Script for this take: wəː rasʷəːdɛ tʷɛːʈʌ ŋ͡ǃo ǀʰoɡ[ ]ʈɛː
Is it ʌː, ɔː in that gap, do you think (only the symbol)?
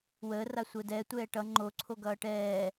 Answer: ʌː